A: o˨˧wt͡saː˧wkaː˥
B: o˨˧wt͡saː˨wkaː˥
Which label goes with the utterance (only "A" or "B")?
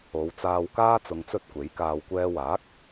A